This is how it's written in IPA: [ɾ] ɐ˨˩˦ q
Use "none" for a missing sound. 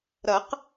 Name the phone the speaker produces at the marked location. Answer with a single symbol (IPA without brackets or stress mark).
ɾ